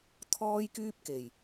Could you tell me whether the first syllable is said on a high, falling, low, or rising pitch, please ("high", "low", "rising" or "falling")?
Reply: high